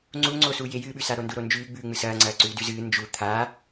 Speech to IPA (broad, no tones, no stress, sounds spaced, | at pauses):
ŋ͡ǀ u ŋ͡ǀ o s u j e j ɨː ɓ ʉ s a ɾ o n d u ɾ o n d͡ʒ ʉː ɡ͡b ʉː ŋ͡m ɨ s ɐː ŋ͡ǀ ɐː ǀ ʉː d ʉ z ɨː n d͡ʒ u t̪ʰ a